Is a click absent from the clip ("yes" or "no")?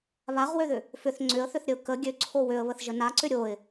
no